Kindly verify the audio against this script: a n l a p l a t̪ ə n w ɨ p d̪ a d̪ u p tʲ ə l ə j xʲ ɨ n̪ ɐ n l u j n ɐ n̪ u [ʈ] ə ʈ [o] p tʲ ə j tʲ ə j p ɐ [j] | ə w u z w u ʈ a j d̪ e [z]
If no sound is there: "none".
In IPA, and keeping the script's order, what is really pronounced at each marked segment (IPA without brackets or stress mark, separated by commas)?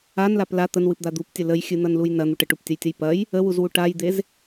ʈ, u, j, z